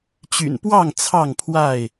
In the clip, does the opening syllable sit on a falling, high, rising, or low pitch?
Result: low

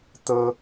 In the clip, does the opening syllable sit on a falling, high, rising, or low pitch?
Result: high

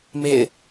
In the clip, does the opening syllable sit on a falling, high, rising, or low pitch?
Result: falling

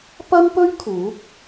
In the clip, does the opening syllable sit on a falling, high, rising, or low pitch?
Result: high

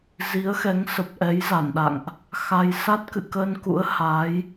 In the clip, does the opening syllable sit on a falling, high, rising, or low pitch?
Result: rising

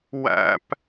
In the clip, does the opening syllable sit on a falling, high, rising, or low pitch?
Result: high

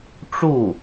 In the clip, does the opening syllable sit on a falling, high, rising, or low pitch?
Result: falling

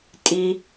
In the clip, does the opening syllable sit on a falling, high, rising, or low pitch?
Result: low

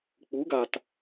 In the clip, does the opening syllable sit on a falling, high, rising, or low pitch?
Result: rising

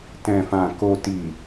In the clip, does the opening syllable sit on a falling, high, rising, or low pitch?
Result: low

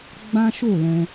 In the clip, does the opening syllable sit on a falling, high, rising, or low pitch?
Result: high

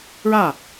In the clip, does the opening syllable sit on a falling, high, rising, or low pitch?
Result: falling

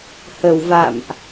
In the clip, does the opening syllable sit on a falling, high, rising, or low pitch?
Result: low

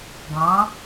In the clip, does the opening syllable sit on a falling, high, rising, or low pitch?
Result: rising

